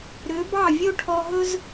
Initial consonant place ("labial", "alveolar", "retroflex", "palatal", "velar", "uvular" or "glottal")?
alveolar